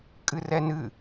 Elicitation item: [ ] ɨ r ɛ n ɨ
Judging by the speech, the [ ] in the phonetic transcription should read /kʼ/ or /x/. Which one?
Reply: kʼ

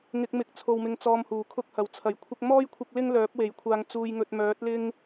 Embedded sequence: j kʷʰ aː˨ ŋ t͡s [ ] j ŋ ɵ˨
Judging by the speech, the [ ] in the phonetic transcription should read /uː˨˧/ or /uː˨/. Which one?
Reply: uː˨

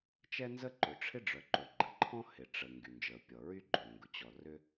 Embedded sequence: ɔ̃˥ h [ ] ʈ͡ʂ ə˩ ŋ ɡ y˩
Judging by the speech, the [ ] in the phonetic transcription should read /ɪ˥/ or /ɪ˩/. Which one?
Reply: ɪ˩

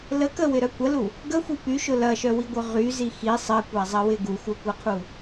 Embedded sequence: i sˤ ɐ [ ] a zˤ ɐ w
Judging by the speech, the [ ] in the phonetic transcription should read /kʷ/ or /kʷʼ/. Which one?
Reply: kʷ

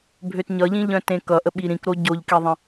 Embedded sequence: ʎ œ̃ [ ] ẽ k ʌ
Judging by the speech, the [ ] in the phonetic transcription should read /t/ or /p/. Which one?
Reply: t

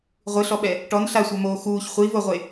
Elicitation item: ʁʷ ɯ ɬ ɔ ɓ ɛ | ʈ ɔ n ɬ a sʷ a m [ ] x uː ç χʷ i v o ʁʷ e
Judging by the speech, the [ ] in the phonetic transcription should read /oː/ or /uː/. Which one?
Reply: oː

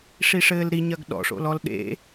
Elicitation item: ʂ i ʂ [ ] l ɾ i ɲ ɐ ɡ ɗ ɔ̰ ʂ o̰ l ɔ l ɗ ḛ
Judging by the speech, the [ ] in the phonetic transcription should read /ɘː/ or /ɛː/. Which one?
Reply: ɘː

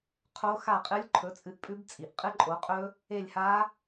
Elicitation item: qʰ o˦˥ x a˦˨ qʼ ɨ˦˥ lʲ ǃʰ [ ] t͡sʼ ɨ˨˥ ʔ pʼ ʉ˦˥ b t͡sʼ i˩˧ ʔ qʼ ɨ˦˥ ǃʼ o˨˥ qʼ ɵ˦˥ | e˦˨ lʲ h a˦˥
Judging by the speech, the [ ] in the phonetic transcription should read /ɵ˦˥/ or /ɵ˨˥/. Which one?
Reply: ɵ˨˥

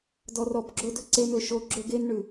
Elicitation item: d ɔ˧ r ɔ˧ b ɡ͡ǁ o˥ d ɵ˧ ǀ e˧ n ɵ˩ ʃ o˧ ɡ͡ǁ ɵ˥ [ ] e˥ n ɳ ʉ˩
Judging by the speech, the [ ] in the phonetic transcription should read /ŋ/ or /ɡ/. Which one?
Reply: ɡ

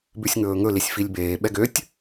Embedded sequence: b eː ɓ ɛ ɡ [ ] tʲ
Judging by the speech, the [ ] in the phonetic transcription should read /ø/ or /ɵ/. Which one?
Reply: ø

